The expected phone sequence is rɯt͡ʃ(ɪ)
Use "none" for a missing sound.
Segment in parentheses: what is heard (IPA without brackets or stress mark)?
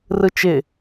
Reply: ɪ